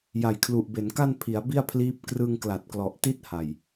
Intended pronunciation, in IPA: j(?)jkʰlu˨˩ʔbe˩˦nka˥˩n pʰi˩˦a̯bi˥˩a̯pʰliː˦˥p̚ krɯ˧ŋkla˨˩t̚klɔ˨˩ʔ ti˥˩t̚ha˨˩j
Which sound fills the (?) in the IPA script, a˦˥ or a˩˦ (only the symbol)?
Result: a˩˦